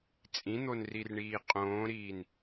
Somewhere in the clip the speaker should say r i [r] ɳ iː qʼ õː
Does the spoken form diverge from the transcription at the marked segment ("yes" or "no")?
no